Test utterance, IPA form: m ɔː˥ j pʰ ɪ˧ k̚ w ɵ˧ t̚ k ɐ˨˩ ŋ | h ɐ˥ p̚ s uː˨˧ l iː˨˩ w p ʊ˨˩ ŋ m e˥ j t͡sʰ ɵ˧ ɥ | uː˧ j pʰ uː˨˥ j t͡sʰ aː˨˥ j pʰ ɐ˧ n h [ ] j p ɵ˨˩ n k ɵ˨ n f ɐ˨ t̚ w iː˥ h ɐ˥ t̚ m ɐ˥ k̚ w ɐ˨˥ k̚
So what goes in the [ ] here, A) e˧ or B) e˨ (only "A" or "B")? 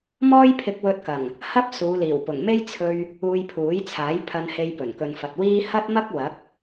A